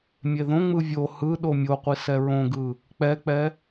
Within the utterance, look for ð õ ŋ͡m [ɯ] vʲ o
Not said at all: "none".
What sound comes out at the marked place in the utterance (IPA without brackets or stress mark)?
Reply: ɯ